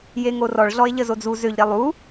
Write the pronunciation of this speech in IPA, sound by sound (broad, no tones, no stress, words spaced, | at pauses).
jeŋorɔɭ ɮɔe̯ʎəzod͡zu zøʎ ɾelˠu